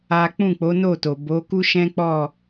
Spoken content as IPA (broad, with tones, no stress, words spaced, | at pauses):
a˦ k͡pũ˦˨k͡po˨˦no˦˨to˨ bo˨˦ku˦ʃɛ̃˦k͡pɔ˦˨